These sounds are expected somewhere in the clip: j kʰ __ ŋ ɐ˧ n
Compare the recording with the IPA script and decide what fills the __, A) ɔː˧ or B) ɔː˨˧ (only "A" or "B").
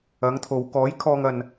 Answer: A